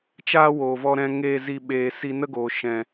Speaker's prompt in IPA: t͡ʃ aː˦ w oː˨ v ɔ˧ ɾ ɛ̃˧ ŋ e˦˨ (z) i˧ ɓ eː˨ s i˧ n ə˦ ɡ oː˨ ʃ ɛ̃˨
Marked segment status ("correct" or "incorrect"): correct